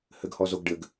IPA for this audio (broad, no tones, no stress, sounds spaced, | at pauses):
h ɘ ɡ h ɔ z o ɡ ɖ ɘ ɡ